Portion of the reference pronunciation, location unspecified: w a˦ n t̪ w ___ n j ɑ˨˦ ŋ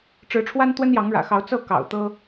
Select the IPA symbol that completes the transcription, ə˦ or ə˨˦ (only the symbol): ə˦